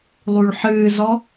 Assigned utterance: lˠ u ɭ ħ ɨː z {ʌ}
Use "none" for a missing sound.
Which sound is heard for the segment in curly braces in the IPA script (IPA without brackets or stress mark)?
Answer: ɔ